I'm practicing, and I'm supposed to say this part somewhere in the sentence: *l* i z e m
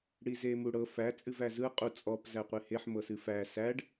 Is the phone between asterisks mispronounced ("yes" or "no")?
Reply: yes